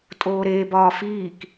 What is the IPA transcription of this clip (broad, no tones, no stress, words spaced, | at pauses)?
tʼoːɾeː bɒːfiːk